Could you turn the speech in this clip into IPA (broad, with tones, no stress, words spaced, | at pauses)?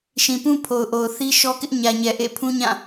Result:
ʃĩ˨pũ˦ pʰo˨ʊ̯ʔo˨ʊ̯ θi˦ʃɔ˦kɪ˦ʔ ɲä˨ɲɛ˨ ʔḛ˦˨ pʰũ˦ɲã˦˨